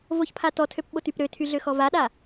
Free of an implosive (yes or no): no